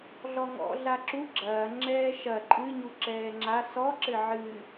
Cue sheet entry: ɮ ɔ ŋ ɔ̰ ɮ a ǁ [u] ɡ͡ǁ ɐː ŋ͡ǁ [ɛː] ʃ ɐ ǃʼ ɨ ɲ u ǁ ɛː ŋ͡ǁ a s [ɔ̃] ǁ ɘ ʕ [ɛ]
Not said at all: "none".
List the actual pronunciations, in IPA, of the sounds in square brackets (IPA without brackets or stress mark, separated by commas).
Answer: u, ɛː, ɔ, ɨ